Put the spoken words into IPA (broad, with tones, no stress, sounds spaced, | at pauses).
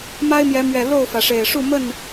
m a˦ ɪ̯ m j ɛ˨˦ m ɥ ɛ˨˩ l o˥˨ ʊ̯ f ä˩ ʂ e˨˩ ɪ̯ ʂ u˥˨ m ə˥˨ n